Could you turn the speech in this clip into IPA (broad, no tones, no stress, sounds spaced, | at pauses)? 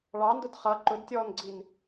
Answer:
ɭ ɑ n d ʊ d χ ʌ ǃ ʊ d tʲ ɔː n ɡ͡ǀ i n